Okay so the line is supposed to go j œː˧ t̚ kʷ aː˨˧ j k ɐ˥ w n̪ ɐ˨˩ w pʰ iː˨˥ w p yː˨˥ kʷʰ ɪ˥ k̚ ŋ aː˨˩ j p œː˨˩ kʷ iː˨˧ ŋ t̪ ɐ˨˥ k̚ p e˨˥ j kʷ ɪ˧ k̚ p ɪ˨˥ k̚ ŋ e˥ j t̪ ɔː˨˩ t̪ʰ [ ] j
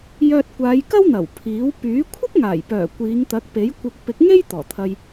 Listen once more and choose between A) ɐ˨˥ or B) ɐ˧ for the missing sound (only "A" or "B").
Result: B